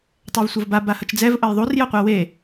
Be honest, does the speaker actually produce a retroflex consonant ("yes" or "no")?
no